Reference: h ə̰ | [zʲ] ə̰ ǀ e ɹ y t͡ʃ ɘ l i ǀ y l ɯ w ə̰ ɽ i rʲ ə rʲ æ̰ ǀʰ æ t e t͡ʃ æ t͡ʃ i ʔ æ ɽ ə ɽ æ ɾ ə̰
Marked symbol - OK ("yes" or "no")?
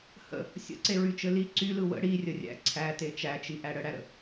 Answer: no